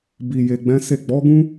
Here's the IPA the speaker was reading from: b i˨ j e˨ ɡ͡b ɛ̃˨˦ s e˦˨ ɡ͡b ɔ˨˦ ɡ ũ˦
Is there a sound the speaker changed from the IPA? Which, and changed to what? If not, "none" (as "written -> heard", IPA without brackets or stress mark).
none